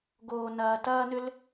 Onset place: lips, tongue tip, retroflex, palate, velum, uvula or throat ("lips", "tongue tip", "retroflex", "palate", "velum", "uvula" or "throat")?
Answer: velum